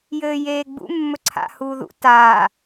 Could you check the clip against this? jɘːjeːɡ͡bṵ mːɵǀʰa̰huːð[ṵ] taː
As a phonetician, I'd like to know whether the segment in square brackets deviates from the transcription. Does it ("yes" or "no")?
no